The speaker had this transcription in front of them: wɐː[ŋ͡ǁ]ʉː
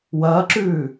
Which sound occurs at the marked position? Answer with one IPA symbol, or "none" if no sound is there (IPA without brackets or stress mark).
ǁ